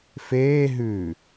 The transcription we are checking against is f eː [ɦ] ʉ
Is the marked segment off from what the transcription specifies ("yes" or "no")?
no